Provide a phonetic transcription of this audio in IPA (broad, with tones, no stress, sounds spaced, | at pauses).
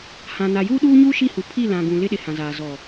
h ã˨ n a˨ j uː˦ ɗ uː˦ ɲ uː˦ ʃ i˦˨ h u˨ pʰ i˦˨ l ã˨ ɡ ũ˨ l ɪ˦ ɗ ɪ˨ h ã˨ z aː˨ z ɔ˨